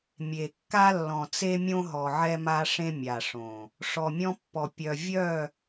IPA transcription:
mʲ e˨ kː a˦ lː ɔ̃˨ t͡s e˦ mʲ õ˦ ɦ ɔ˨ ʕ ɛ˦ m a˦ ʂ ẽ˦ mʲ a˨ ʂ õ˨ | ʂ ɔ˨ mʲ ɔ̃˦ pː ɔ˨ pʲ œ˨ vʲ œ˦˨

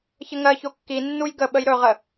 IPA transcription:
ç ə ŋ ɜ ç o kː i nː u j ɡ ə ɓ ə j ɾ ɵ ʁ ə

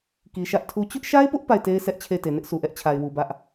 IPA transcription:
k i˨ ʃ ä˦ ʔ tʰ u˦ t͡ɕ ʊ˦ ʔ ʃ a˦ ɪ̯ p ʊ˦ ʔ p a˦˨ ɪ̯ t e˦ ɪ̯ sʰ ɛ˦ ʔ t͡ɕʰ e˦˨ ɪ̯ t e˨ n ɪ˦ ʔ s u˨ ʔ ɛ˦ ʔ t͡ɕʰ a˨ ɪ̯ w u˨ b ä˦ ʔ

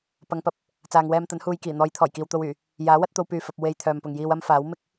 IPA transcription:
p ɐ˨˧ ŋ p ɐ˨ p̚ | t͡s aː˨ ŋ w ɛː˧ m t̪ ɐ˨˥ n h uː˨ j k iː˨˩ n̪ ɔː˨˧ j t̪ʰ ɔː˨˩ j k iː˨ w t̪ o˧ w yː˨˩ | j aː˨˥ w ɐ˥ t̚ t̪ o˧ w p yː˨ f ɐ˨ p̚ w e˨ j t̪ʰ œː˨ m p ʊ˨ ŋ j iː˧ w ɐ˥ m f aː˨˥ w m ɪ˥ k̚

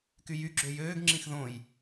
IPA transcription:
k y j y ɡ͡ǁ ø j øː ɡ ŋ͡ǁ ĩ x ð õ j

